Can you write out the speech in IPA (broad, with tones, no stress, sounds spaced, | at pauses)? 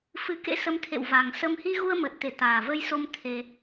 f ɨ˨˦ k ḛ˧˥ s ə˨˦ m t̪ʰ ḛ˧˨ w v a˨˩ ŋ s ə˧ m h i˧ ɣ u˧ ə̯ m ə˨˩ t̚ t̪ e˧˩ t̪ aː˨˩ v ə˧ j s o˧ m t̪ʰ e˧